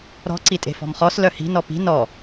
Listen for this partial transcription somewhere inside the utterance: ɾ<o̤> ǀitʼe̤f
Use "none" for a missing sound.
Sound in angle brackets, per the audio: ɔ̤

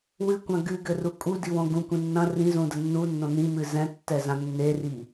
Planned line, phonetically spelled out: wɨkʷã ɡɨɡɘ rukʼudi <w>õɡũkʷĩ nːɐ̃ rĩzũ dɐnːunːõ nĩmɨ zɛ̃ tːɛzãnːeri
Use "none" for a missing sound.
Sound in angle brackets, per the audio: w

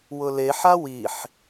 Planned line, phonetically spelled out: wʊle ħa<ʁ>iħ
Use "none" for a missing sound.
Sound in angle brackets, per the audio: w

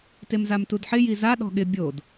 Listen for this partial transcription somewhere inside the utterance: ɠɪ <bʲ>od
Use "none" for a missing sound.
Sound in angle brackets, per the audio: bʲ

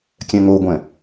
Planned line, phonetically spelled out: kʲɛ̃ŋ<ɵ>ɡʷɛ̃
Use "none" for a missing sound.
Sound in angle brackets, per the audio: o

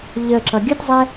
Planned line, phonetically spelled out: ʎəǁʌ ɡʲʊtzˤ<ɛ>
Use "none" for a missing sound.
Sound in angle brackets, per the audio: ɛ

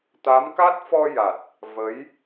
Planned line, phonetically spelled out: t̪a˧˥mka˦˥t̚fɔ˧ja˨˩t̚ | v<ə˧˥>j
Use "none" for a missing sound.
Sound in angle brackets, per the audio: ə˧˥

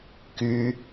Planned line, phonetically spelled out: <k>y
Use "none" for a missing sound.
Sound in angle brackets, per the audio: k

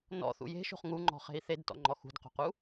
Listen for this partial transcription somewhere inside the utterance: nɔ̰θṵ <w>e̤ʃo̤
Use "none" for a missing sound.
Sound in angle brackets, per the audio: j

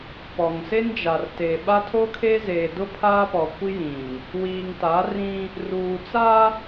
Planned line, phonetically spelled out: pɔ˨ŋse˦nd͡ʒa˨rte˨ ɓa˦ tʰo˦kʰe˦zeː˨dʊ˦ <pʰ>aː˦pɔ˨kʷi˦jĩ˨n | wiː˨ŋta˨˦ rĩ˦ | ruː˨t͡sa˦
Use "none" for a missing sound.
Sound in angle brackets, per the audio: pʰ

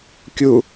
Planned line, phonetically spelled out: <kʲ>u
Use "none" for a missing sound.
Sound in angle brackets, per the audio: kʲ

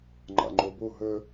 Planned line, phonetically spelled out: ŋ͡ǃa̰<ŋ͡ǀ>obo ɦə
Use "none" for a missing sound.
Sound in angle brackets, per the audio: ŋ͡ǃ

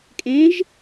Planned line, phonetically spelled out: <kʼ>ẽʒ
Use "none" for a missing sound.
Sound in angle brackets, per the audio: kʼ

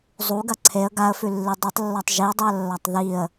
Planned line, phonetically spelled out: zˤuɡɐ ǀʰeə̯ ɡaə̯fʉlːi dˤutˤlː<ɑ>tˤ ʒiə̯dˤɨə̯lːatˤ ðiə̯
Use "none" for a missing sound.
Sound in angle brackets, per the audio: a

